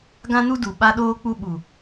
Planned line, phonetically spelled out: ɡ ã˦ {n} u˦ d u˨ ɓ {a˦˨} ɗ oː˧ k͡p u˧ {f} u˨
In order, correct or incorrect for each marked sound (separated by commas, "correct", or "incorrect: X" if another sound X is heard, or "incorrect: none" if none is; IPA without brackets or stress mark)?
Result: correct, incorrect: a˧, incorrect: ɓ